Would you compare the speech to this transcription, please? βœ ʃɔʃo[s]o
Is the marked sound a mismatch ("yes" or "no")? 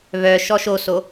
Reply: no